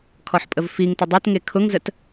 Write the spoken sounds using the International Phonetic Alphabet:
kʰ ɔ ħ pʼ ə v f i ŋ t ʊ dˤ e t ŋ e kʰ ʊ ŋ z ə t

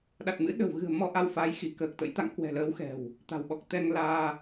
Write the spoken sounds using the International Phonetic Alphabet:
ɗ a˨˩ t̚ m ɨ̰˧˥ ɗ ə̤˨˩ w ɣ ɨ̤˨˩ ə̯ m ɔ˧ ʔ a˧ w f aː˨˦ j x i˧˩ k əː˨˩ k̚ t̪ ə̰˧˥ j t̪ a̰˧˨ ŋ k w ɛ̤˨˩ l əː˨˦ w x ɛ̤˨˩ w | t̪ a̤˨˩ w ɓ ɔ˨˩ k̚ t̪ ɛ˧ ŋ l aː˧

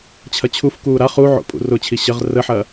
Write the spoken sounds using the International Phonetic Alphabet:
t͡ɕʰ ɐ t͡ɕʰ u f k uː ɾ a χ u ʕ o̰ pʼ ṵ r ʊ t͡ɕʰ i ɕ ə ʁ r ə ħ ɐː

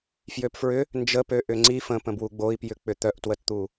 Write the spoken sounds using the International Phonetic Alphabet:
f j ø p f ɹ ʏ | n d͡ʒ ə p ø ʔ ʏ ŋ͡ǀ i f ə̃ p ə̃ b w u ɡ͡b o i̯ p j ʏ k͡p ʏ t̪ œ ʔ t w ə t t̪ u

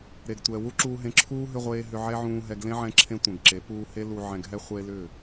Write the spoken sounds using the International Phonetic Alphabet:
ɾ e˨ ɡ tʷ ɛ˨ w u˦ ǁ uː˧ ɦ ẽ˧ ǁʰ uː˦ ɦ ʏ˧ ʁʷ eː˧ ɦ ʏ˧ ʕ ɛ˦ ʕ ũː˧ ɦ ɛ˧ ɡ l ẽ˦ ʕ ɛ̃˧ ǁʰ ẽ˧ tʷ ɛ̃˨ ɡ ǁ e˨˦ p uː˧ h e˦ l u˧ ʕ ɛ̃˧ ɡ ɦ ɛ˦ χʷ e˦ l ʏ˦˨

